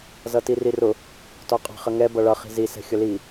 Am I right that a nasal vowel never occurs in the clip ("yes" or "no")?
yes